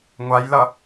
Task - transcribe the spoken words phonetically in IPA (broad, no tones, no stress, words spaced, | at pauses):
ŋʷajlʌ